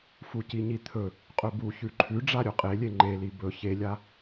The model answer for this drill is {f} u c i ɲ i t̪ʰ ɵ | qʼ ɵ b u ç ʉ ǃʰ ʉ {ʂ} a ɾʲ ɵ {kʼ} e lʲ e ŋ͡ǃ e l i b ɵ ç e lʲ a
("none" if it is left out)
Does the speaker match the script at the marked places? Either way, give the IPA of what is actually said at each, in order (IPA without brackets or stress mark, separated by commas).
f, ɖ͡ʐ, qʼ